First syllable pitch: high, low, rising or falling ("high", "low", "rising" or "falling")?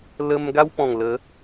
high